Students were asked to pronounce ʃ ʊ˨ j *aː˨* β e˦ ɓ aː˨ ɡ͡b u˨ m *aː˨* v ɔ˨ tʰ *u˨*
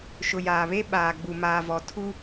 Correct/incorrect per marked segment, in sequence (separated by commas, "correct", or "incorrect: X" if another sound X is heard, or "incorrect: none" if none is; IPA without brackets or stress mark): correct, correct, incorrect: u˦